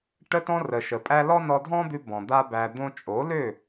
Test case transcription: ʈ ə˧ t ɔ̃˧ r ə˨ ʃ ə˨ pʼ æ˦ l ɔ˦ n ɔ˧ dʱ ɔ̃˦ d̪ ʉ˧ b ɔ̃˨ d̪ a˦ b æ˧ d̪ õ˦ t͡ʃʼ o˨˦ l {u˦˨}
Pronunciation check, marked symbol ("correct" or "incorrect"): incorrect